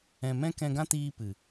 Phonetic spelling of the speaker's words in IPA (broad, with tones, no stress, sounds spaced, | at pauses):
ɛ̃˧ m ɛ̃˦ k ɛ̃˧ ɡ ã˦ t iː˧ p ɨ˨